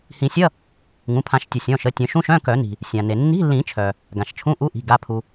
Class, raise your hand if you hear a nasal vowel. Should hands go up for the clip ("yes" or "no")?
yes